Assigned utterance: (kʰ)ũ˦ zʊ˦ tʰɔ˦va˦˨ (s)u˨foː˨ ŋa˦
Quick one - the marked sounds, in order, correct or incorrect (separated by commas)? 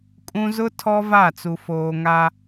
incorrect, incorrect